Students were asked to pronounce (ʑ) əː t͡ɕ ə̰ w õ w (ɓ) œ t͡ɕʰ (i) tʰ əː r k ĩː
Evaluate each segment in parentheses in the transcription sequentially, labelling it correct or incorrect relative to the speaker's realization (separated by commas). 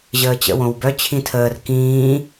correct, incorrect, incorrect